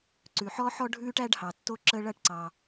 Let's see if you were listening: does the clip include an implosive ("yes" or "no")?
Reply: no